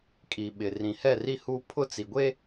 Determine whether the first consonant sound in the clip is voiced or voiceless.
voiceless